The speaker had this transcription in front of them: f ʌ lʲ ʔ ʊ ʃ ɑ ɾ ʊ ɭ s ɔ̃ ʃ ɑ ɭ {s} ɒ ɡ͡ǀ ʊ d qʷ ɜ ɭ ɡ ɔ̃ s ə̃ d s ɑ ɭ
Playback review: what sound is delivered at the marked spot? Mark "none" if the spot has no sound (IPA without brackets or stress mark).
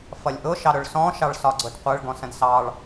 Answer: s